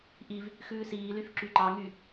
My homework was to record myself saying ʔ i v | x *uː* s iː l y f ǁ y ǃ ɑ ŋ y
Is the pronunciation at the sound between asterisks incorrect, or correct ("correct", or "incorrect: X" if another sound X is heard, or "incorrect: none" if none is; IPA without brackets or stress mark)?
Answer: incorrect: ʉː